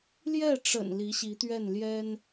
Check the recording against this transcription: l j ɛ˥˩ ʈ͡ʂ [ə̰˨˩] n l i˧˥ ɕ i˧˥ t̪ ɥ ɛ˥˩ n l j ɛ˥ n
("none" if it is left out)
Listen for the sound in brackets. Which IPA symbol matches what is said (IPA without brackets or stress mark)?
ə̰˨˩